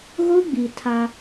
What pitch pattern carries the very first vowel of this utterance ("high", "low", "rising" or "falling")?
high